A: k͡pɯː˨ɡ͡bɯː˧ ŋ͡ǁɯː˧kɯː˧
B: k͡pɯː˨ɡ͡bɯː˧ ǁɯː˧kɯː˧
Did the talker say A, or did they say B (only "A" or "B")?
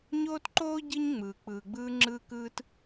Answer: A